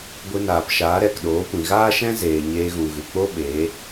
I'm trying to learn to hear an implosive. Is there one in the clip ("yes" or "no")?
yes